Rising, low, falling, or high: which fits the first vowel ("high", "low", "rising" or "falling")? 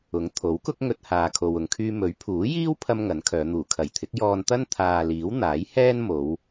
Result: rising